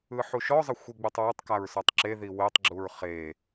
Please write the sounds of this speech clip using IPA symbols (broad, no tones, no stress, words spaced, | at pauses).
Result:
ɯħuʃɔzˤə xʷiɡ͡butˤwetˤkaɹ sɔtˤǁeði wetˤɡ͡ǁuɹ χe